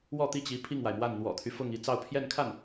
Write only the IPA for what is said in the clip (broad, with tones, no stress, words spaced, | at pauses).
wɔ˥˧t̪i˥˩t͡ɕi˧˥ pʰi˥˩ŋwa˩ɪ̯mwa˥˩n n̪wɔ̰˨˩t̪ʰy˦ fʊ˥˧ŋi˥˧ t͡sɑ˥˧ʊ̯pʰjɛ˥˧nkʰa˥˩n